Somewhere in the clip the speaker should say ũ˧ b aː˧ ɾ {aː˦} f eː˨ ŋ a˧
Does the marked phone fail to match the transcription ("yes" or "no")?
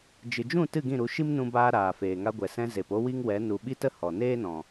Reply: yes